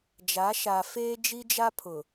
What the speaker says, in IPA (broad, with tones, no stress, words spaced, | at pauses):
d͡ʒa˨˦ʃa˨feː˦ d͡ʒi˦d͡ʒa˦pʰʊ˨